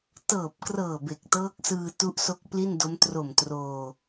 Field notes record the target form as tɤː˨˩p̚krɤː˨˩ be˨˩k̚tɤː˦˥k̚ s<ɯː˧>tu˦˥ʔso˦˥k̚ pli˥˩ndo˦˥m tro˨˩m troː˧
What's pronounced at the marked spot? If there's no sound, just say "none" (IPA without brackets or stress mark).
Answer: ɯː˧